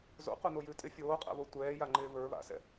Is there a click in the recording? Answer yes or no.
yes